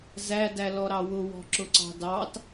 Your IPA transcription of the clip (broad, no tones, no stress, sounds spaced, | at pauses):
z æ d æ l ɔ ɾ ɑ w ʊ w ɔ̤ ǁ ʊ ǀ ɑ̤ d ɑ t